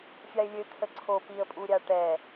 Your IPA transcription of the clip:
fʲ a ɪ̯ lʲ ø kʰ ə ǀʰ o p i ə̯ pʼ u ɾʲ a ʈ ɛ

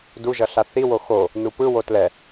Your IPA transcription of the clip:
d u ʒ ʌ ɬ a θ i w o x o | n u p ɯ w o t l ɛ

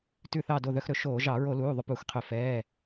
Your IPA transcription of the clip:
t ʉ˧˩ θ ɑ˧˩ d o˧˩ ð œ˧ x ɾ ɵ˧ ʃ oː˧˩˧ ʒ ɑ˧˩˧ ɹ o˧˩˧ l uː˩˧˩ ðˤ ʉ˧ p uː˧˩˧ x qʰ ø˧˩˧ f ɛː˩˧˩

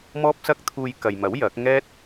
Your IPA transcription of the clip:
m ɔː˥ p̚ s ɐ˥ k̚ t̪ʰ uː˧ j k ɐ˨ j m ɐ˨˥ w j ɐ˨˥ k̚ ŋ ɛː˥ t̚

